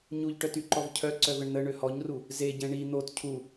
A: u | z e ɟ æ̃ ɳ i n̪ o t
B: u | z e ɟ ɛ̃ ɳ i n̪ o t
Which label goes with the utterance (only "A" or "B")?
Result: B